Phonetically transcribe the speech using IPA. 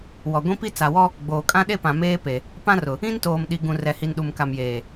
w ɔ˨ ɡʷ ĩ˦ p i˦ t͡s a˨ w ɔ˦ | ɡ͡b oː˨ kʼ ã˦ ɗ e˦ p ã˨ m eː˦ p e˨ | p ã˦ r ʊ˨ | ĩ˦ n t oː˨ m ɗ i˨ ɡ ũ˨ r ɛ˨ h i˨ n ɗ u˨ m k a˨ m j eː˨

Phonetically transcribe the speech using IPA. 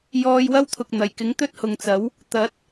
j ɔː˧ j w ɐ˥ w t̪ʰ ʊ˨ k̚ n̪ ɐ˨˩ j k ɪ˨˥ ŋ t̪ ɵ˥ t̚ h ʊ˨ ŋ t͡s ɐ˨˥ w | t̪ ɐ˨˥ t̚

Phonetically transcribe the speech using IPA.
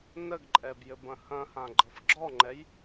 n ə ɡ ǃʼ ɛ b j ɘ b ɐ̃ h ɐ̃ h ã ɡ͡ǃ ɤ f ɡ͡ǁ ɔ ŋ͡ǃ ɛ j

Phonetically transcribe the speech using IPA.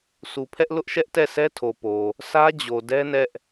s u˨ pʰ ɛ˦ ʔ l ʊ˦ ʔ ʃ ɛ˦ ʔ t ɛ˦˨ s ɛ˦ tʰ o˨ p o˨ | s ä˦ d͡ʑ o˨ d ɛ˦ n ɛ˦ ʔ

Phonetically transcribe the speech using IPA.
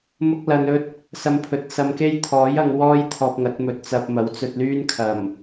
m ʊ˥ k̚ l ɐ˧ n ɵ˥ t̚ | s ɐ˧ m pʰ ɵ˨˥ t̚ s ɐ˧ m k e˥ j t̪ʰ ɔː˨˥ j ɐ˧ ŋ w ɔː˥ j t̪ʰ ɔː˧ p̚ ŋ ɐ˨˥ t̚ m ɵ˧ t̚ t͡s ɐ˧ p̚ m ɐ˨˥ w t͡s ɵ˧ t̚ l yː˥ n kʰ ɐ˨˩ m

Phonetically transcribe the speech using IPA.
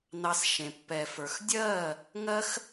n ɑ˧ s ʃ ẽ˨ pː ɛ˨ f ə˞˨ x dʲ ɜː˦˨ | ŋ ɜ˦ x

